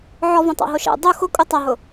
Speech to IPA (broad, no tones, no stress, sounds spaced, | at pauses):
ʕ ɔ v õ tˤ a̰ ɦ o ʃ ɛ̰ dˤ u x ʊ kʼ u tˤ a ɦ ʊ